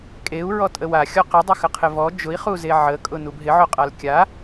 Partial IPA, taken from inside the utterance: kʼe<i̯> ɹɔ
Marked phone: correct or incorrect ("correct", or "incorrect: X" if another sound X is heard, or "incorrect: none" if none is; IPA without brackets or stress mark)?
incorrect: u̯